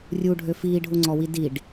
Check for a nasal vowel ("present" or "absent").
absent